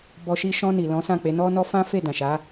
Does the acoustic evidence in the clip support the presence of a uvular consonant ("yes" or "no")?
no